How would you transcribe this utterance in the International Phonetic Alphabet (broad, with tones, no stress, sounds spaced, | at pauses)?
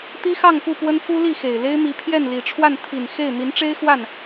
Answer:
t̪ i˥ x ɑ˥˧ ŋ p u˥˩ p w ə˥ n f u˥ l i˥˩ x e˨˩ ɪ̯ l e˥ ɪ̯ m i˧˥ pʰ j ɛ˥˩ n l i˨˩ ʈ͡ʂʰ w a˥˩ n t̪ʰ i˨˩ n x e˥˩ ɪ̯ n̪ i˧˥ n ʈ͡ʂ e˥ ɪ̯ x w a˥˩ n